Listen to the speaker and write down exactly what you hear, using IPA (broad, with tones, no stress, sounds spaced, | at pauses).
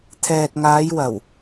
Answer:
t̪ʰ ɛː˨ t̚ ŋ aː˨˧ j w ɐ˨˩ w